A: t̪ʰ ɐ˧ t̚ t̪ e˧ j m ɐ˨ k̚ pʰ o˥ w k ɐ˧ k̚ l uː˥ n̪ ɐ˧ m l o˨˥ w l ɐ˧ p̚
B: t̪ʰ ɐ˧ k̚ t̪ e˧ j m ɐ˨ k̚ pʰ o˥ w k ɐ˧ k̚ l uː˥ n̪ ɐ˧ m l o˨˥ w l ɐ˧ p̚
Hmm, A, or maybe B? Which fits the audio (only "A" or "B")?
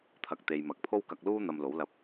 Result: B